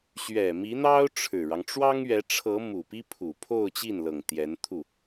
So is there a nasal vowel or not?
no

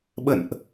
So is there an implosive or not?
yes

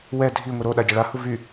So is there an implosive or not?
yes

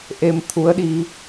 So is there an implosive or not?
yes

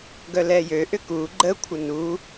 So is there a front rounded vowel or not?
yes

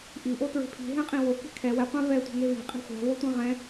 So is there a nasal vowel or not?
yes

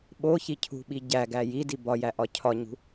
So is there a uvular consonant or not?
no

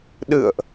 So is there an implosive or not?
yes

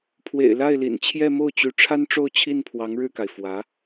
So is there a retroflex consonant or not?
yes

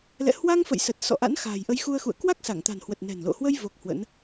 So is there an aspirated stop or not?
no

